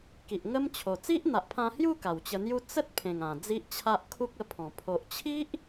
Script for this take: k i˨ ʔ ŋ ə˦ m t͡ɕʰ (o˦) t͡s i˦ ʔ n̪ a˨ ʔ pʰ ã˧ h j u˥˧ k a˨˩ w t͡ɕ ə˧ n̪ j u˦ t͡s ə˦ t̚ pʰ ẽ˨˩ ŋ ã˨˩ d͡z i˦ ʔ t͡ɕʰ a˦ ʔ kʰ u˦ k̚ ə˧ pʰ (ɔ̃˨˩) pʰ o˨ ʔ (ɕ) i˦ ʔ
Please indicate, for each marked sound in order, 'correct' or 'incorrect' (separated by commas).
incorrect, correct, incorrect